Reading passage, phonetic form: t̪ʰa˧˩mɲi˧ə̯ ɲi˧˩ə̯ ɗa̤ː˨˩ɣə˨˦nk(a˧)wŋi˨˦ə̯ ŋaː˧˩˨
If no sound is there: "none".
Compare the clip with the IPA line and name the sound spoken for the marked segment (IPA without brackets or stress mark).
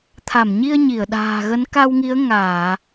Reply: a˧